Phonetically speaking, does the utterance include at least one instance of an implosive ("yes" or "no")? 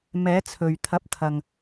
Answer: no